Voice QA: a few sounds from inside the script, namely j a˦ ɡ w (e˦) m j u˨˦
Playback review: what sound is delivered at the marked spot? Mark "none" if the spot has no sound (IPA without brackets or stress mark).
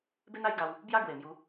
e˨˩